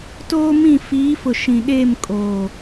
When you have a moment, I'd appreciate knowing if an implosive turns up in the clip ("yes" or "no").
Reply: yes